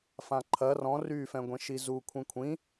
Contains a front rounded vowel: yes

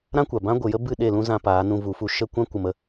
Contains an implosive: yes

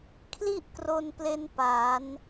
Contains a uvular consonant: no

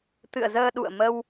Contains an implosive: yes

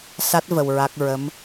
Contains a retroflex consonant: no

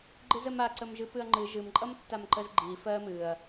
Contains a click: yes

